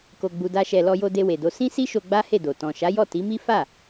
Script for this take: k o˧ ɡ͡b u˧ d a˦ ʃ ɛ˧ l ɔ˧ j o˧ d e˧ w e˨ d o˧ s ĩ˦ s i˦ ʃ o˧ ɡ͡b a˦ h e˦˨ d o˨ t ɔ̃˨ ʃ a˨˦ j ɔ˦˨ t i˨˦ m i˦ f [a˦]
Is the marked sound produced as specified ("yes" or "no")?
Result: no